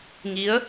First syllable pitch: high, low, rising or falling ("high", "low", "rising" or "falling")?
rising